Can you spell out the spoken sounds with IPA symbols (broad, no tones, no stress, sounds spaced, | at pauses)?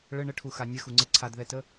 ɭ ə ɳ ə ʈʰ u x a nʲ ə x u ŋ͡ǀ e ǀʰ a d ð ɛ t ə